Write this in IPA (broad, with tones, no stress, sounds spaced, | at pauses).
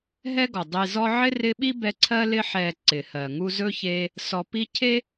ɦ ɛ˦ ɡ ɔ˩ dˤ i˨ z ɔ˦ ʕ ɪ˥ r ɪ˦ ɓ i˥ b ɛ˦ ǀʰ ɜ˥ l ɪ˥ ħ ɛ˨ ǀ ɪ˩ h ɜ˩ ŋ u˦ z ɵ˥ ç e˦ | s ɔ˨ p i˦ cʰ e˥